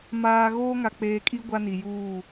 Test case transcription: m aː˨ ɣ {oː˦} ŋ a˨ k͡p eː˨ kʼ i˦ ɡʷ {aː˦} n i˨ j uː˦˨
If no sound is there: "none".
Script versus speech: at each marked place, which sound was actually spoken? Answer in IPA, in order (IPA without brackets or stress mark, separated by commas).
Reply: oː˦, a˦